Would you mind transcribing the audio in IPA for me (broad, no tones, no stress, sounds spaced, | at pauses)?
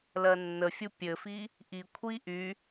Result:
l ɜ nː ə fʲ u pʲ ɘ f i | ʔ i kʷʰ i ʔ y